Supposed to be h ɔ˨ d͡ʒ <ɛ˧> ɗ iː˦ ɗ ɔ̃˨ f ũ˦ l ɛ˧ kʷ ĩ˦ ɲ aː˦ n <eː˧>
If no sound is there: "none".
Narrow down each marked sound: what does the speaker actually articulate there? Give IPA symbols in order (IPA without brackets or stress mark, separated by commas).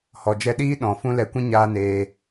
ɛ˧, eː˧